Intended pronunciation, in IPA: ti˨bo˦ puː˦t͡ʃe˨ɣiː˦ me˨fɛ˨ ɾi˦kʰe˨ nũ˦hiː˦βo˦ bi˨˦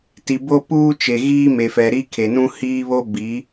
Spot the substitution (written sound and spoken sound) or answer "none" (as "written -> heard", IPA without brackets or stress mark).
none